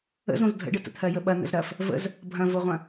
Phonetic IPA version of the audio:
ə̰ z õ z dʱ ə̰ ɖ ə t ə̰ t̪ʰ ɜ j ə ɓ ɐ n̪ ə̰ z ɾ ɐ f | v ə̰ z | bʱ ɐ̃ v o ʁʷ ɐ̃

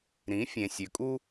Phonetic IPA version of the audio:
ɾ ĩ˨˦ fʲ ẽ˨ sʲ ø˨ kʼ u˦

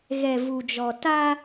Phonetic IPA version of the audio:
ɣ ɛ˨ v u˨ d͡ʒ ɔ˨ t a˦

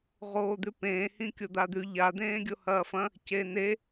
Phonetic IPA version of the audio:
ʁ oː d̪ ʉ p ẽː h ĩ kʲ o d̪ a d̪ ʉ ʎ a d̪ ẽː ɡʲ o h ɐː f ɐ̃ | c e n e

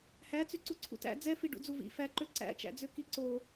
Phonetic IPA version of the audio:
h æ t͡s y ǀ u ǀʰ ṵ t æ̰ d͡z ɛ f i ɖ ṵ d͡z u v ḭ f æ ǃ ø ǀ æ̰ t͡ʃ æ̰ d͡z ø k i ǀ o

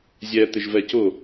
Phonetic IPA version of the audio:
zʲ ɛ t̪ ɪ ʒ v ɛ c ʊ

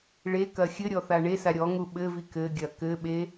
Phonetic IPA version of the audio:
ɭ e k ɐ xʲ ɘ ɾʲ ɔ θ a ɳ e s a ɾʲ ɔ ŋ u ɓ ɘ v i k ɘ ɡʲ ɐ k ɘ ɓ e

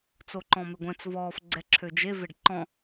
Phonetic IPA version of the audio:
t͡s o ǃ ɔ̃ m e ɡʷ ɛ̃ t͡s v ɔː f ɡ͡ǀ ɛ ǁʰ ø d͡ʒ e v e ɖ ǃ ɔ̃

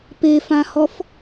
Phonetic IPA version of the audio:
p e f ã h ɔ f

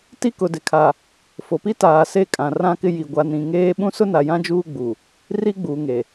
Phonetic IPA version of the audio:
t i˦ k ʊ˨ d ɪ˨ kʰ a˨ | f o˨ p i˦ t aː˨ s e˦˨ kʼ ã˨ r ã˦ k ɪ˦ j i˨ ɡʷ a˨ n ĩ˨ ŋ eː˦ ɓ ũ˦ s ʊ˦ n a˨ j ã˦ d͡ʒ uː˦ ɡ͡b u˨ | r i˦ ɡ͡b uː˨ ŋ e˨

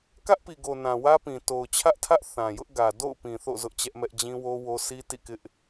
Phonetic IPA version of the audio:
k ä˦ ʔ p i˨ ɡ o˨ n ã˨ w ä˦ p ĩ˨ t o˨ ʊ̯ t͡ɕʰ ä˦ ʔ tʰ ä˦ ʔ θ ã˨ j ʊ˦ ʔ ɡ ä˨ d o̰˦˨ ʊ̯ p ĩ˨ θ o̰˦˨ z ʊ˦ ʔ t͡ɕ ɛ˦ ʔ m ɛ˦ ʔ d͡ʑ ĩ˦ w o˦ w o˦ s i˦ t ḭ˦˨ k ɪ˦ ʔ

